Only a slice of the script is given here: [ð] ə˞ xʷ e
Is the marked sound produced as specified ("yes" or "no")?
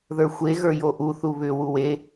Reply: yes